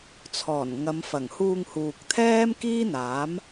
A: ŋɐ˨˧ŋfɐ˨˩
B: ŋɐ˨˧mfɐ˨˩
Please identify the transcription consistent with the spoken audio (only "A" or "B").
B